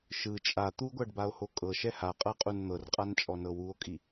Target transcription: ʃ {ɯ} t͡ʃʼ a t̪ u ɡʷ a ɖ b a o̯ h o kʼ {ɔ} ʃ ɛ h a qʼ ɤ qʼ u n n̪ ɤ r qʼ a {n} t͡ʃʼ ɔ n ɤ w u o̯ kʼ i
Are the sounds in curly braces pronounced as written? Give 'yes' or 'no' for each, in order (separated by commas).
yes, no, yes